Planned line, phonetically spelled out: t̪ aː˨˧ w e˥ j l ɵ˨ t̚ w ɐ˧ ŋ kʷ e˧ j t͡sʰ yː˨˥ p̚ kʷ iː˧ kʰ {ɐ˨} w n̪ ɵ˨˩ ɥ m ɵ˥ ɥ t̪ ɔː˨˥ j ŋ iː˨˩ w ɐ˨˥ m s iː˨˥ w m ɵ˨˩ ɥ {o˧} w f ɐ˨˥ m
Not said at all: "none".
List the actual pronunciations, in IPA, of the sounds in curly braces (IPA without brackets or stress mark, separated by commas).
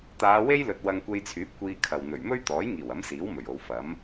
ɐ˨, o˨˧